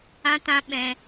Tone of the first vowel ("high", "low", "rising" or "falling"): high